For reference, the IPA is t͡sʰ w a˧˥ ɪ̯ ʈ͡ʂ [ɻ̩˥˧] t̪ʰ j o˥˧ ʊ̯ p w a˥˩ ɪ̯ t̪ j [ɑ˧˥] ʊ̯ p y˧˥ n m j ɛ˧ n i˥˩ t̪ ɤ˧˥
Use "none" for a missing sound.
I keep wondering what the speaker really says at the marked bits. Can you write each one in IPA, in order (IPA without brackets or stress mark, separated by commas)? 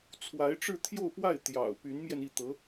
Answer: ɻ̩˥˧, ɑ̰˨˩